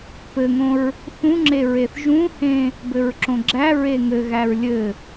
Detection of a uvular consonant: absent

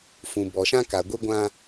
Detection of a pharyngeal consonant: absent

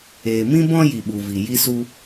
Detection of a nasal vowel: present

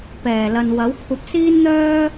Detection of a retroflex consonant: absent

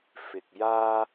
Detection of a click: absent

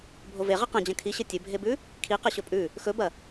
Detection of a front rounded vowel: absent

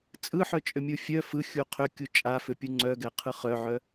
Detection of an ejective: present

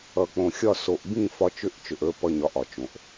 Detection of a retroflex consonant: absent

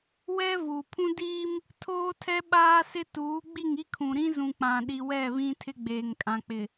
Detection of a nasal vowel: present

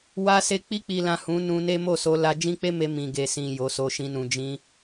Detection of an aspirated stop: absent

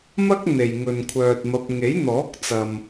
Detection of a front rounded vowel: present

